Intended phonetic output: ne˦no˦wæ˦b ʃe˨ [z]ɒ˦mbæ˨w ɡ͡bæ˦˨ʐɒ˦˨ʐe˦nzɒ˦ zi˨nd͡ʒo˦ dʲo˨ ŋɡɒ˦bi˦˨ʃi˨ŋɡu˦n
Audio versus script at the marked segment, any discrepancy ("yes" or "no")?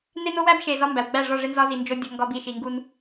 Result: no